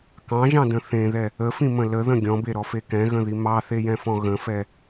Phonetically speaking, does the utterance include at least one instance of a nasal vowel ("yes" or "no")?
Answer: yes